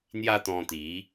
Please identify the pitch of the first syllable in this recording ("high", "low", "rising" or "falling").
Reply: high